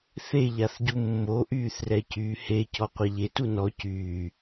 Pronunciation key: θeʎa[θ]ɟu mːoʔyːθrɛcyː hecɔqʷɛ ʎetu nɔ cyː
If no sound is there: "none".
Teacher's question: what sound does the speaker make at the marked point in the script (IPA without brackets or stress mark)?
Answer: θ